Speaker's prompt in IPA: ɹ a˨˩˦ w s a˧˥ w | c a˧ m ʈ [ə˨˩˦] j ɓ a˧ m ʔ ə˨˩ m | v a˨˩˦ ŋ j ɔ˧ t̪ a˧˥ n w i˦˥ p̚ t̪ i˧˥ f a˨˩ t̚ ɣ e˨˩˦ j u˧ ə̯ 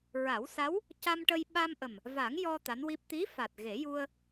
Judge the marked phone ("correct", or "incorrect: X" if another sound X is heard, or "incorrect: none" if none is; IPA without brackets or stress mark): incorrect: ə˧